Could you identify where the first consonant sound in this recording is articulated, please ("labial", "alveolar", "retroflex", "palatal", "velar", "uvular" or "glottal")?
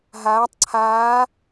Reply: glottal